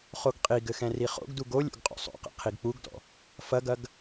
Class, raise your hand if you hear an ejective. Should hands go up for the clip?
yes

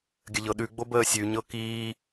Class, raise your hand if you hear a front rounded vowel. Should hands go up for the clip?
no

